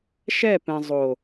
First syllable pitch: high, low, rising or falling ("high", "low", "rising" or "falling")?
falling